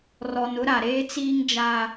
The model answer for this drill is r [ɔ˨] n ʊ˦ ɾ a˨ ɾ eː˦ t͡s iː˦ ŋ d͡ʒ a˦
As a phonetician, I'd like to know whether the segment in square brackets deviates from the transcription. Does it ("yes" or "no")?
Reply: no